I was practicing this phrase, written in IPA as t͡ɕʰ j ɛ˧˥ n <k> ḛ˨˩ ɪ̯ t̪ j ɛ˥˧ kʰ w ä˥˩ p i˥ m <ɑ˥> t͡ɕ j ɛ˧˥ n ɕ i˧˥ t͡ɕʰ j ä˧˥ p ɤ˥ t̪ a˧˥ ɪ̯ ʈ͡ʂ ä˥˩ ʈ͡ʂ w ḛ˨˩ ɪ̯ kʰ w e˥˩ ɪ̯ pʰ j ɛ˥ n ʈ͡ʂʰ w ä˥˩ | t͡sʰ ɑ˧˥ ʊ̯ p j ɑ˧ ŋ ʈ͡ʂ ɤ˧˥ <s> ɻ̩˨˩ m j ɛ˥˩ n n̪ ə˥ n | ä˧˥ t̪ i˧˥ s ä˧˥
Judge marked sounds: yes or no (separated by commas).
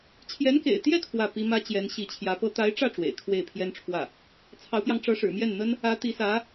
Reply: yes, no, no